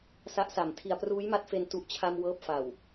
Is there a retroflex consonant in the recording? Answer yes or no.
no